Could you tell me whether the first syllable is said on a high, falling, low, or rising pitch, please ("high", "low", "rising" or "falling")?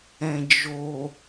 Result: low